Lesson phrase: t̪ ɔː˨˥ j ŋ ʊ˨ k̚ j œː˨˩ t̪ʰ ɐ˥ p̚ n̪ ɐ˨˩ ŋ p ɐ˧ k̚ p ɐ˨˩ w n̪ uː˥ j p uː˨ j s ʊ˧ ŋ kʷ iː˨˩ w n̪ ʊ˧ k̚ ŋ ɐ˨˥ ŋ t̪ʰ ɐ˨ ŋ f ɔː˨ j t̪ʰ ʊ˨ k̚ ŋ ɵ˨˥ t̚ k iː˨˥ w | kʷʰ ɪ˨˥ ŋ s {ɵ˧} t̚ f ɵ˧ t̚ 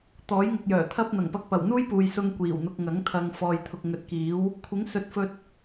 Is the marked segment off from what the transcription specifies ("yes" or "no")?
yes